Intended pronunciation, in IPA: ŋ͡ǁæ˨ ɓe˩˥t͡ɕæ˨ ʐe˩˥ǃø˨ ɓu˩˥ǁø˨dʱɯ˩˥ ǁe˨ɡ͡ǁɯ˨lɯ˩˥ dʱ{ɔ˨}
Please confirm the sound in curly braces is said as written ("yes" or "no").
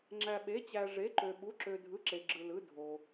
no